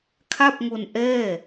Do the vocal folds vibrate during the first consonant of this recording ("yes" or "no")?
no